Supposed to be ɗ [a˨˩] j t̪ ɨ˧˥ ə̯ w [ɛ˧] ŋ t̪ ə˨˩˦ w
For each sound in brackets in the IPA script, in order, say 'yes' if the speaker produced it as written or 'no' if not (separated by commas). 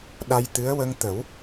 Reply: no, no